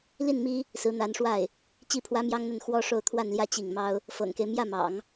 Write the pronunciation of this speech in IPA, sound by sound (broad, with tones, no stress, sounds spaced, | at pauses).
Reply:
l i˥˩ n m i˥ | s ɹ̩˧˥ n̪ a˧˥ n ʂ w a˥˩ ɪ̯ | t͡ɕ i˥˩ pʰ w ä˥ m j ɑ˥ ŋ n̪ ə˥˩ n x w ɔ˥ ʂ o˥˧ ʊ̯ t̪ʰ w a˥˧ n l j ä˥˧ t͡ɕ i˥˩ ŋ m ɑ˥ ʊ̯ | f ɤ̰˨˩ ŋ k e˦ ɪ̯ m j ä˥˩ m ɑ̰˨˩˦ ŋ